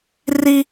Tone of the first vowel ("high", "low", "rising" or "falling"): high